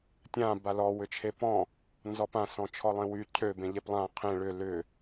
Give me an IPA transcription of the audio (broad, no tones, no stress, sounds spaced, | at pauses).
tʲ ã b a l ɔ w ʏ t͡ʃʰ e p ɔ̃ | n z ɔ p ã s ɔ̃ t͡ʃʰ ɔ lˠ ẽ w y cʰ ø b ẽ ʎ e p lˠ ã qʰ ẽ ɭ ʏ l ʏ